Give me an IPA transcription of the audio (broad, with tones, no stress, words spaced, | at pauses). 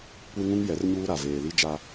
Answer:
kʷe˦ŋũ˦ŋ jɛ˨˦rɲuː˦ɾa˨ veː˨li˦ d͡ʒa˦